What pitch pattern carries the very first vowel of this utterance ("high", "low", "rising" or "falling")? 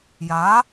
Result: rising